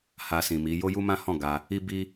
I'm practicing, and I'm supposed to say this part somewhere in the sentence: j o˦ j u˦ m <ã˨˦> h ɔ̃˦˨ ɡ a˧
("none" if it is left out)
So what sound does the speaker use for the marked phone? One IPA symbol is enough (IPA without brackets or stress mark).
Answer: ã˦